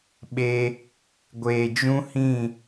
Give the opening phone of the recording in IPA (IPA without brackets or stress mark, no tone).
ɓ